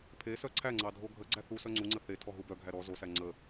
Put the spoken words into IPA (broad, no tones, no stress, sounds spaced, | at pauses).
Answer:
pʰ e s œ ǀʰ æ ŋ͡ǀ ɑ dʱ o ɡʱ ə ɡ͡ǀ æ θ u s œ ŋ͡ǀ u ŋ͡ǀ ə θ e tʰ ɔ ɦ u b œ ɡʱ æ ɾ ɔ z o s æ ŋ͡ǀ ə